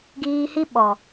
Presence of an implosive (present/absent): present